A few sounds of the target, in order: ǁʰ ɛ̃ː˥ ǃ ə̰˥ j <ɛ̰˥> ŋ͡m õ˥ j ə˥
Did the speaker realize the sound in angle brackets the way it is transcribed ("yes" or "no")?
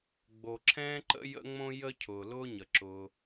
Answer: no